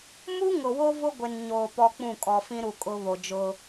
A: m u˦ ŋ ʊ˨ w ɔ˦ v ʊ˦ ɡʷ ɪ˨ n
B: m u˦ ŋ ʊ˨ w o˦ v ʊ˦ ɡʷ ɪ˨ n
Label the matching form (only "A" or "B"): B